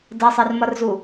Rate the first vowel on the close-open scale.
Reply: mid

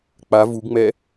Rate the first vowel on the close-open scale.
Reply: open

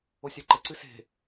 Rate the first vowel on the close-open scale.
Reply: mid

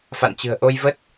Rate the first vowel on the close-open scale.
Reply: open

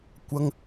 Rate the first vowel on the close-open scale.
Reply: open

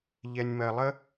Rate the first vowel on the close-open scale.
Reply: mid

